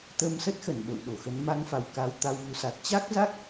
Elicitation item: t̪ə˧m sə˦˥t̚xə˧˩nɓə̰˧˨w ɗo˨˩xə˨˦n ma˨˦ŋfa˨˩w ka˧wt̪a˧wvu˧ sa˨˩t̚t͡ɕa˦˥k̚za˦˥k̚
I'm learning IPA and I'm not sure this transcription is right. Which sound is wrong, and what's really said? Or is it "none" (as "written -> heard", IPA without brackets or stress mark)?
none